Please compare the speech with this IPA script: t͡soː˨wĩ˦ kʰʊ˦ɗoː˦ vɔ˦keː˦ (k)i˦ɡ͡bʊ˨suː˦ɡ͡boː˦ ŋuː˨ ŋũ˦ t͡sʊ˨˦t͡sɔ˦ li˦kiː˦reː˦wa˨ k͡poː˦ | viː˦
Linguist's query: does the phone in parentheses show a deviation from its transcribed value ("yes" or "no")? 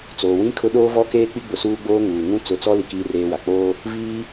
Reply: yes